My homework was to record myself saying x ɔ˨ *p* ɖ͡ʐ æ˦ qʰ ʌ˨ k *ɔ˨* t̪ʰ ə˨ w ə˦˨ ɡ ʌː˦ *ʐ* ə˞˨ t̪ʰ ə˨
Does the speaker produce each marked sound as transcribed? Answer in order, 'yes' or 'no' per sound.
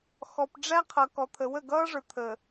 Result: yes, yes, yes

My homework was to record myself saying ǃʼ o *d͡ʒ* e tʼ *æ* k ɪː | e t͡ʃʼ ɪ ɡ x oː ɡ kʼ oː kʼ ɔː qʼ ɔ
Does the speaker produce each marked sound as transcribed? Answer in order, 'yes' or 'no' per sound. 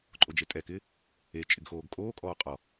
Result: yes, no

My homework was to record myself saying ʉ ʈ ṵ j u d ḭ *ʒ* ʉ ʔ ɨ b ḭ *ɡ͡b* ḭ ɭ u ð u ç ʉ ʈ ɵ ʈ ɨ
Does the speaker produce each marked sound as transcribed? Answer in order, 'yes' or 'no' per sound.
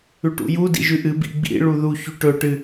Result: yes, yes

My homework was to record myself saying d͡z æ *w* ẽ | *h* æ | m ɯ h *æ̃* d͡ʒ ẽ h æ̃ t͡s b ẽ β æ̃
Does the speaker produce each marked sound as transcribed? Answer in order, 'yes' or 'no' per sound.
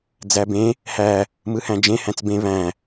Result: no, yes, yes

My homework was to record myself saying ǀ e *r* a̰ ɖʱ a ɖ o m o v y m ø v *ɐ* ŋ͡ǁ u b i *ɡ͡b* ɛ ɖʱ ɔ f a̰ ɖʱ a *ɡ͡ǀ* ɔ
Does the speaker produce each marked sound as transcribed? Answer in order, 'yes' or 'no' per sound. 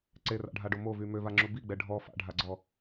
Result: yes, no, yes, yes

